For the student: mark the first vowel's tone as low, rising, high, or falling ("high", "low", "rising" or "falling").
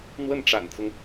falling